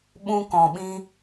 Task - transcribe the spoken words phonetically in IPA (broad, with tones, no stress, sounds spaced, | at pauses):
ɓ ũ˧ k ɔ̃˨ ɓ ĩ˧